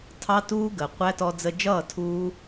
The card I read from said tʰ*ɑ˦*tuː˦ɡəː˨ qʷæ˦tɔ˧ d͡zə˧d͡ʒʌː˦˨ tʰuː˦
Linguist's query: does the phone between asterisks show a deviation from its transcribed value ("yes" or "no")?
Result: no